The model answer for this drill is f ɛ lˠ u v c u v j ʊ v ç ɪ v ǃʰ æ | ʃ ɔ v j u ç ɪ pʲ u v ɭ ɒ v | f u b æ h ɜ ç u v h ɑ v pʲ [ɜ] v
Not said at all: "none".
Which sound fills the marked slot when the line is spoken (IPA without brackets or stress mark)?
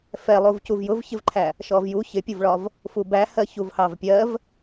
ɜ